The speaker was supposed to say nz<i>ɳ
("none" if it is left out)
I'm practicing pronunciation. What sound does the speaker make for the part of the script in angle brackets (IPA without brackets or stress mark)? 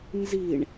i